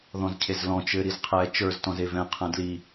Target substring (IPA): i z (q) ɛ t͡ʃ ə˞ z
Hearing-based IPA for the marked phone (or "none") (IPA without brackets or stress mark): qʰ